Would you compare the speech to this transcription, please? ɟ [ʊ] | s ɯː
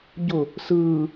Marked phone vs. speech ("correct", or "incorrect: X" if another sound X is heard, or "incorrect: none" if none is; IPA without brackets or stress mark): correct